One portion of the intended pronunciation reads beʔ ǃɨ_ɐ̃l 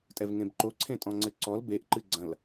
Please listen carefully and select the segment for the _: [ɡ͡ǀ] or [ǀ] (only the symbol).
ɡ͡ǀ